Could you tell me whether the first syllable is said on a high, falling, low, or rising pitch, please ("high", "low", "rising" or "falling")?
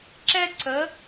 high